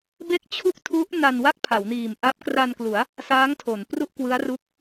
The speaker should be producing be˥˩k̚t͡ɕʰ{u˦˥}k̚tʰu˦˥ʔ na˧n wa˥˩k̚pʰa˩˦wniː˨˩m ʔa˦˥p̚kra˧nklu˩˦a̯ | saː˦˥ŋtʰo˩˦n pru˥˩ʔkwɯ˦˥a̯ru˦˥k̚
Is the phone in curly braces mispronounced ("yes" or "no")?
yes